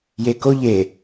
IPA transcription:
jekoʎ e

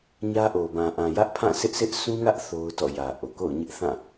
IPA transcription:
ɲä˦ʔo˨ bã˨ʔã˨ jä˦ʔpʰã˦˨sɪ˦ʔsɪ˦ʔ sũ˦ŋä˦ʔ θo˦ʊ̯tɔ̰˦˨jä˨ʔo˨ ko̰˦˨ʊ̯ɲɪ˦ʔθã˦˨

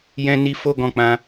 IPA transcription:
jɛ̃˧ni˧ fo˦ɡɔ̃˧ k͡pã˧

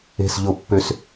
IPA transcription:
e̤˧˩sʎo˧˩˧pːø˧˩s

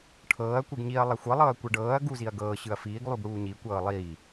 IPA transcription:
ʈʰɤːɐ̯ kʷɯɡɲiɐ̯ lˠaxʷɤ lˠɤːɐ̯kʷɤɖɤːɐ̯ ɡu ziɐ̯ɡɤː ɕɯɐ̯fiːɡ lˠuɡɽuːɲi kʷɤːlˠiː

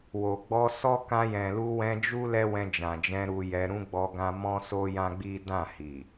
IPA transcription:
wo˨ɡ͡bɔ˧sɔ˦ kã˧jɛ̃˨lu˧ wɛ̃˧d͡ʒu˦ lɛ˦wɛ̃˧d͡ʒã˨d͡ʒɛ̃˧ ɾu˧jɛ˧ ɾũ˦ɡ͡bɔ˧ɡã˧ mɔ̃˦so˦ jã˦ɡ͡bi˦ dã˦˨hi˨

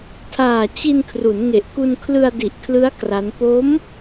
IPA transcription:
tʰaː˨˩ t͡ɕi˧nkʰru˩˦nŋe˨˩ʔ ku˧nkʰlɯ˧a̯di˨˩ʔkʰlɯ˦˥a̯ kra˦˥n po˦˥m

